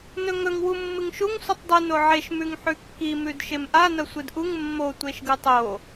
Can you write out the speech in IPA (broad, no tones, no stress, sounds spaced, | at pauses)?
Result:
n ɵ ŋ ɵ ŋ w u mː ɨ ŋ ʃ u ŋ sʷ ɨ tˤ dˤ ɨ n o ʕ e ʃ m ʉ ŋ ħ ʉ kː i m ʉ d ʃ e m ʔ a n ɐ sʷ ɨ d ʔ u ŋ mː o tʷ e ʃ ɡ ɨ tˤ o